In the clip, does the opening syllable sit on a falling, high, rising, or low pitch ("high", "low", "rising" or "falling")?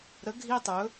rising